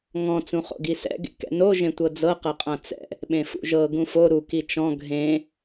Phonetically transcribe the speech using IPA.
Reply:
ŋ ɔ̃ t͡s ũ χ o̰ ɡ i s ɛ̰ ɡ ḛ k ɛ̰ n o ʒ ẽ tʷ ɤ d͡z ɤ q ɤ qʼ ã t͡s ɛ̰ | ɓ ẽ f ṵ ʒ ɤ ɡ ũ f o ɾ u k i t͡ʃ ɔ̃ ɡʱ ẽ

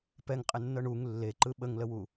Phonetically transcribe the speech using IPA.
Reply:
p ɛ ŋ qʼ ɪ nː ɤ ɳ u ŋ lː e ǃ ɯ ɓ ə ŋ l ə w u

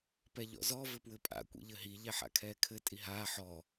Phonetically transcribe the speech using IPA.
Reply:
p ɛ ʎ ɔ̰ z ɔ v ɘ p w ɘ pʼ a̰ kʷ ḭ ʎ ɘ ɦ i ʎ ɛ ħ a̰ kʰ ɛː kʰ ɘ tʼ i ɦ aː ħ ɔ

